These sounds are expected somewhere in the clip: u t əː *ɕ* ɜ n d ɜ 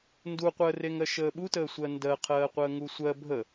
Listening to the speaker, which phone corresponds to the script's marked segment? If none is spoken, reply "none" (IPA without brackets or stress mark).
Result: sʷ